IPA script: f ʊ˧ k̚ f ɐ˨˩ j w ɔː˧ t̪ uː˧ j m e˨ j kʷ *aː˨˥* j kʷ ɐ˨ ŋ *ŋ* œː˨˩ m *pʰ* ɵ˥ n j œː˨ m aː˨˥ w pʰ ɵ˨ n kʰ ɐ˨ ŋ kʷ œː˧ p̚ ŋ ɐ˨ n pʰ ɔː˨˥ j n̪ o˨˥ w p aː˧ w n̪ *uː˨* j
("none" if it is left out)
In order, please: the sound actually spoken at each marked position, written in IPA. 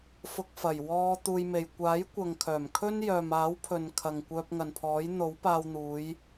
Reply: aː˨˥, kʰ, kʰ, uː˨˧

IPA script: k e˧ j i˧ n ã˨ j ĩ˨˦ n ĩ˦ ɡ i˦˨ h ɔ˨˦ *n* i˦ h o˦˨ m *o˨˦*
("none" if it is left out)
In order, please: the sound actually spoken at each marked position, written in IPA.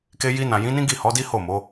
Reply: d, o˨˦

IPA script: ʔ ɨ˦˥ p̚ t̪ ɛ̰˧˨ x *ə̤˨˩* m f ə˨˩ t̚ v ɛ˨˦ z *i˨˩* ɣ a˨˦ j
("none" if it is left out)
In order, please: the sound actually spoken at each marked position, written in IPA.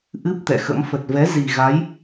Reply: ə̰˧˥, i˨˩

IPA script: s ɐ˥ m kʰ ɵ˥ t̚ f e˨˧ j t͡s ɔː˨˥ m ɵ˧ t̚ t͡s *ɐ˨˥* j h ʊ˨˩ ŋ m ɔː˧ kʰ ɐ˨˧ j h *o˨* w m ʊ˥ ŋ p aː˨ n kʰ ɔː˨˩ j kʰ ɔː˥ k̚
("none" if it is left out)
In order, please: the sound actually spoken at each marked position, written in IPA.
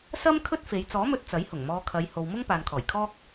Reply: ɐ˨˥, o˨

